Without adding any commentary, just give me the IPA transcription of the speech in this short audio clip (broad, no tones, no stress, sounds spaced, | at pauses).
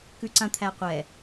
k ʉ ǀ ã t̪ʰ æ qʷ ɛ